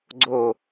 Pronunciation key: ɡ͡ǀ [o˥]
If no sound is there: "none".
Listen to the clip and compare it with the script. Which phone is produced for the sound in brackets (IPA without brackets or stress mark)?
o˥˧